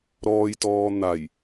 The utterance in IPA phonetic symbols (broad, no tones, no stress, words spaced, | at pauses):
ɾɔːjtɔː n̪aj